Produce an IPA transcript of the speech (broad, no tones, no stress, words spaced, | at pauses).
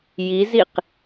jiziq